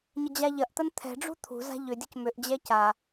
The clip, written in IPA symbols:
ɲəd͡ʑaʎɐʔt̪ən t̪ʰɛ̤ ɖ͡ʐṳt̪ʰṳza̤ ʎʏdʲəc mʏʔd͡ʑɛ ca

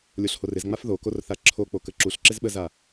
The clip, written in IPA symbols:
lʲoɬhorɪzŋ͡maf ðokorθa ǁʰo k͡pokəǁuɬ ǁɪzɓəza

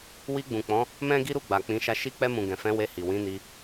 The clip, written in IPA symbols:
wi˧ɡ͡bũ˨k͡pɔ̃˨˦ | mɛ̃˦ɡi˦ɾu˦˨ ɡ͡ba˨k͡pĩ˨˦ʃa˦˨ ʃi˧k͡pɛ˧mũ˨ ɡɛ̃˨fɛ̃˨˦ we˧hi˨ wĩ˨˦ni˧

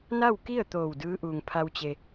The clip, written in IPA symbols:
na˥˨wki˥˨ə̯ t̪oː˧˩wdɯː˧˥ʔuː˩ŋpʰa˧w t͡ɕe˩

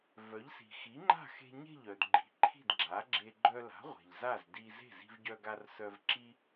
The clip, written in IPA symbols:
vœ˩˥ʎsi̤˩ xi˩˥ŋ͡ǃa̤˥˩xe̤˧ ɲe̤˥˩ʎœ˩dɡ͡ǃi̤˩˥ ǃʰi̤˥˩dɡ͡ǁa˩˥ɡ͡ǁe˧ ɡ͡ǃœ˧la̤˩˥ ʁʷe̤˩ʎza˥˩z di˧ ze̤˥˩zi̤˧vɟœ˧ɡa˧r sœ˧v ǁi˥

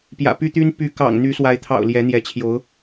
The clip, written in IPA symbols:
pjä̰˨˩py˥t̪y˥n py˧˥kɑ̰˨˩ŋn̪y˧˥swa˧˥ɪ̯ t̪ʰɑ̰˨˩ʊ̯ ljɛ˧˥n̪jɛ˧˥t͡ɕʰjo˧˥ʊ̯

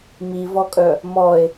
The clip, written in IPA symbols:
mivɔkʼœ | mɔe̯

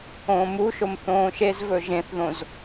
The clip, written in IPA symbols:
õːmuʃom θõːʃezvɵ ʒẽθðõz

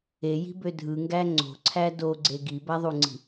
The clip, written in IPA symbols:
eji̤bø dʱɯŋɡæ ŋ͡ǀo̤ǀʰæ doɡ͡ǀe ɡibæðˤuŋ͡ǀi̤

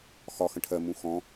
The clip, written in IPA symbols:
xɒ xə̃ʈʰɜmũ xɔ̃

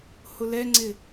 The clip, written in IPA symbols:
hʊlɛŋ͡ǀɪ

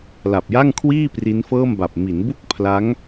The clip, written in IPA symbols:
la˨˩p̚ja˥˩ŋkʰwiː˥˩ pri˦˥nfɤː˥˩mba˨˩p̚ mi˩˦nbu˥˩k̚ pʰla˦˥ŋ

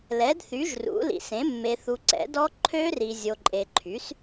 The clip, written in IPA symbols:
lɛ˩˥dθy˩˥ʒrṵ˩˥ lḭ˨sẽ˩˥ mːe˨θu˨ǀɛ̰˩˥dɔ˦˥ ǃʰø˦˥ri˨ zʲo˨ǃʼe˨ǃʰy˩˥s

